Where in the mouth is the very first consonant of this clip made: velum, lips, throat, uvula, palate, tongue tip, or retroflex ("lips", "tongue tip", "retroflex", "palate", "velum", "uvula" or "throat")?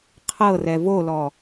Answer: uvula